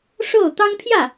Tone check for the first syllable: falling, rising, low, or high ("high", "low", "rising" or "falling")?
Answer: falling